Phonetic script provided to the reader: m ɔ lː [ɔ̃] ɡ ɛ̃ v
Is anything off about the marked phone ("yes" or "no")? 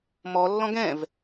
no